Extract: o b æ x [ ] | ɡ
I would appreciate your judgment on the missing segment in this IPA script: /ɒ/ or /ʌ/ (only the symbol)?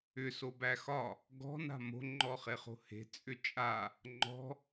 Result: ɒ